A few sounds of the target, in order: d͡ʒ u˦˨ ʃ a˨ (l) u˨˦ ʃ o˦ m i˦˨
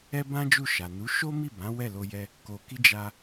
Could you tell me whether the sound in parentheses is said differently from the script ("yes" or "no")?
yes